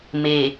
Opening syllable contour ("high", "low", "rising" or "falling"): low